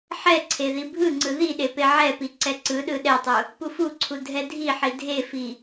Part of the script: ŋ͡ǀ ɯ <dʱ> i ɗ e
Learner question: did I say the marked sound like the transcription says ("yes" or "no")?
no